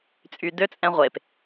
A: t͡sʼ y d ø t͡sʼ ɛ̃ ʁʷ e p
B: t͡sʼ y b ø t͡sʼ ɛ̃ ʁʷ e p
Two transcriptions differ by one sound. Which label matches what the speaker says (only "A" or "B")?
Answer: A